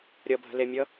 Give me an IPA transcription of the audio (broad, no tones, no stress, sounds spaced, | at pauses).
ɾʲ ʌ bʱ ə̤ l e mʲ ʌ